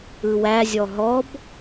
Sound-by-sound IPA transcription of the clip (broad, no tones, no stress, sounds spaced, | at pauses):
ɯ w æ zʲ ɔ ɦ ɔ b